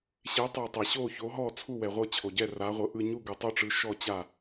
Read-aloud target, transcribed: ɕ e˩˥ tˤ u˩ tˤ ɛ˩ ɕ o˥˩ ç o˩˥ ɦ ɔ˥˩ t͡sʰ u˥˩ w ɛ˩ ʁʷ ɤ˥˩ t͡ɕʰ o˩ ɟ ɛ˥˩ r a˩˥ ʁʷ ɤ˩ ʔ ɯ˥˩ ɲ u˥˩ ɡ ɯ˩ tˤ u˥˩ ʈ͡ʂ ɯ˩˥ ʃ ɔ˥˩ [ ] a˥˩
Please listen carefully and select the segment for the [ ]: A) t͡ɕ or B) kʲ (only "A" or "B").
A